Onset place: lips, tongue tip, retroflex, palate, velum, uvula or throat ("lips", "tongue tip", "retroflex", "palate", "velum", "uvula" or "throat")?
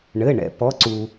retroflex